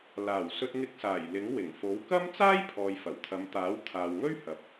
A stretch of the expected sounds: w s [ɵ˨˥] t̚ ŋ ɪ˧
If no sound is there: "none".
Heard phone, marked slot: ɵ˧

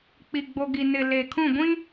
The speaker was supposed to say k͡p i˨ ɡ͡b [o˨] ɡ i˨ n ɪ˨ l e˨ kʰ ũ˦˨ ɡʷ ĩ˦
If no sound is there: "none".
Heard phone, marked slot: o˨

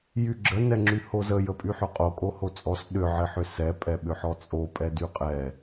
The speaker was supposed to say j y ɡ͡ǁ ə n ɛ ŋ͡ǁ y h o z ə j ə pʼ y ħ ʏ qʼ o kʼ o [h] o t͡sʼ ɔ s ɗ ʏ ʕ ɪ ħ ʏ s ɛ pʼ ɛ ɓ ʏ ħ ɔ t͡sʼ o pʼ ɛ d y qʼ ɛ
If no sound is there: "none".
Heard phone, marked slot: h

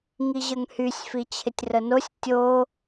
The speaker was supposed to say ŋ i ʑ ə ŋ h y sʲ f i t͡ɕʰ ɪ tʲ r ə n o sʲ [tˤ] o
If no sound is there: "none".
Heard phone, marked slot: tʲ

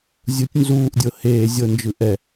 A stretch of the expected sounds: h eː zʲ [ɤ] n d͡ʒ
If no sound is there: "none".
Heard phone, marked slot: ɤ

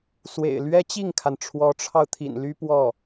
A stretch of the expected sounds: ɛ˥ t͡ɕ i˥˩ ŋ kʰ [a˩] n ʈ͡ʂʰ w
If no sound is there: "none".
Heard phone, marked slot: a˩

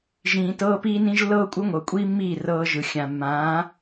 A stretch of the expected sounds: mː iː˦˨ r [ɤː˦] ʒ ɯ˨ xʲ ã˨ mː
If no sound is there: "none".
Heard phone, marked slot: ɤː˦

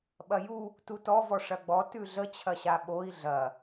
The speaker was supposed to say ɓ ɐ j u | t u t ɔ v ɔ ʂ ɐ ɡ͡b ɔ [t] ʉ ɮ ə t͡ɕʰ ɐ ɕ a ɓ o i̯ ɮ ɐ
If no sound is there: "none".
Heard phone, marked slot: t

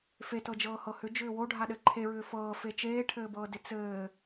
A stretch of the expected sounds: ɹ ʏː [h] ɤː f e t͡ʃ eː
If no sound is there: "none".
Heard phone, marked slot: f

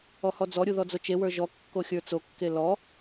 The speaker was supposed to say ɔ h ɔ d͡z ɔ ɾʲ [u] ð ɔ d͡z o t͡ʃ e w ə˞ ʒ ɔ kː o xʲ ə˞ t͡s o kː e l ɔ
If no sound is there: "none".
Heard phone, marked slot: u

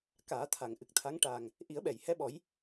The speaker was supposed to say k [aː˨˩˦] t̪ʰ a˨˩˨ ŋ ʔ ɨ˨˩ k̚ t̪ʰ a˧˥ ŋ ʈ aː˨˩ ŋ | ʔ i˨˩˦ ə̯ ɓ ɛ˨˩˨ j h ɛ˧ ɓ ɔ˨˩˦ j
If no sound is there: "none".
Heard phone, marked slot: aː˨˩˦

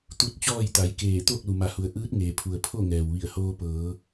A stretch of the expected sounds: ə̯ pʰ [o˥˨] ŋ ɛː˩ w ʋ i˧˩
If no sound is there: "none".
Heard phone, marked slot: o˥˨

